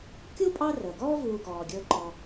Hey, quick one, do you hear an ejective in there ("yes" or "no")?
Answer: yes